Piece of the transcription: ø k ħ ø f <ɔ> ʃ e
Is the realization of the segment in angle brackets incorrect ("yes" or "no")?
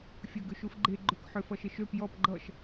yes